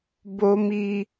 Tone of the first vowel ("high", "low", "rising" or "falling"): high